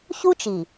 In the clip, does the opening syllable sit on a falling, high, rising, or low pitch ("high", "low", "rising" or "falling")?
high